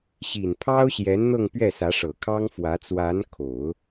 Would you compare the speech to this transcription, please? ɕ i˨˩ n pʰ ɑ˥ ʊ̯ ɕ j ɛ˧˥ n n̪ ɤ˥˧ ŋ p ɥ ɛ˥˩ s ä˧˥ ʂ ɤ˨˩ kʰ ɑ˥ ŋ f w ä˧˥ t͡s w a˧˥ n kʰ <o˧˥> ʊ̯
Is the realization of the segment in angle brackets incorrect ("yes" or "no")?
yes